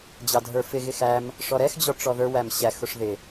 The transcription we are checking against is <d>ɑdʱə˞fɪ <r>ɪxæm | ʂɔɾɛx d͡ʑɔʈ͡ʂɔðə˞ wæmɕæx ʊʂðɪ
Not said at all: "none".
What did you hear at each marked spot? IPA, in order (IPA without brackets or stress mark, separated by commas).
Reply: d͡ʑ, ɣ